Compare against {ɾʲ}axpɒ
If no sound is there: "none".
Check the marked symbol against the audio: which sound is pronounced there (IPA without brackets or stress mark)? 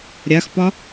ɾʲ